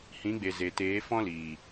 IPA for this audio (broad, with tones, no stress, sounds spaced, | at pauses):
h ĩ˨˦ ɡ͡b e˨ z e˨ t eː˨˦ f ɔ̃˦ l iː˨